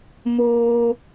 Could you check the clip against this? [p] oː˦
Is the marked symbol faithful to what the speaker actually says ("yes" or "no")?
no